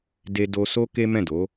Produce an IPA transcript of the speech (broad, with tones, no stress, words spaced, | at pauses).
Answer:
de˧ do˧so˦ ke˦mɛ̃˦˨do˨˦